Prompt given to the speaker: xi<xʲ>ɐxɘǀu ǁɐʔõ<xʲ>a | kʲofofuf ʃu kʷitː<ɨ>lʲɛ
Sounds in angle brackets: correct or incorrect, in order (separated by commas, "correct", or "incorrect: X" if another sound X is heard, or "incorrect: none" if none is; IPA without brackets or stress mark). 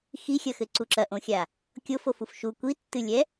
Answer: correct, correct, correct